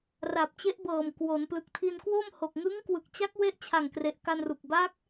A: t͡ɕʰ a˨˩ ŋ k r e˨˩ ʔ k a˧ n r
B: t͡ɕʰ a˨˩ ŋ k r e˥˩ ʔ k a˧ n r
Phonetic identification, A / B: A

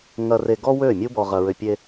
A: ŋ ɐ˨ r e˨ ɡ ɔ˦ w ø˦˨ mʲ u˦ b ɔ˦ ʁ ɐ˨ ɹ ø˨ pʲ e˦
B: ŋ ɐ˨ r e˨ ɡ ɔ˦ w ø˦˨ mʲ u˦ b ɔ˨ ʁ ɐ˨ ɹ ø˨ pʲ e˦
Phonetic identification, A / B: B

